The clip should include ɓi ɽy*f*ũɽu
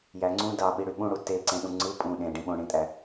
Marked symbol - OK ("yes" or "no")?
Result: no